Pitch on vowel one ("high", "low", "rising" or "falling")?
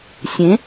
rising